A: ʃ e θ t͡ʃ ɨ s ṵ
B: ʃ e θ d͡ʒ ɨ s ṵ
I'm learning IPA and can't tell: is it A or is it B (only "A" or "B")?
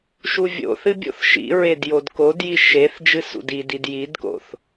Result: B